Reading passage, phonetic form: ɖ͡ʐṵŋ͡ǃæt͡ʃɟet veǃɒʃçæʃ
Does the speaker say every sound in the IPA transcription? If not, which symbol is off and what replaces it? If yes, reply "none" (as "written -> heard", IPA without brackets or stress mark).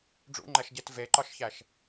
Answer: t͡ʃ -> ʃ